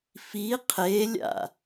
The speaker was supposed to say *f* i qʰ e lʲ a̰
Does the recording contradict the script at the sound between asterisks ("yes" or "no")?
no